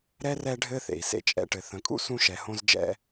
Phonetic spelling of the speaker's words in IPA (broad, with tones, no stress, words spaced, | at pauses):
ɾɛ˥rɛ˦ɖʱɘ˦ θḛ˩i̯sḛ˥t͡ʃʼɛ̰˥ʈɘ˨ θə̃˨kʼṵ˥ sũ˥ʃɛ˨ hõ˥zd͡ʒɛ̰˦